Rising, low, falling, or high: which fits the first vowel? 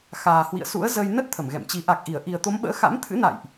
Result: low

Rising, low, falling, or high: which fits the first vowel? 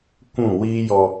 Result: falling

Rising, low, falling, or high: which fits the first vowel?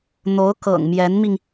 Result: rising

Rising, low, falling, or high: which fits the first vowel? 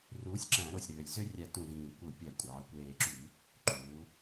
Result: rising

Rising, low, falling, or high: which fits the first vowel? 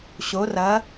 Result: rising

